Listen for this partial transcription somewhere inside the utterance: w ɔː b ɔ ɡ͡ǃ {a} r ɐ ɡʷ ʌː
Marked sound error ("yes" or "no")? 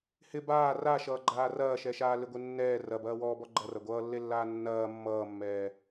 yes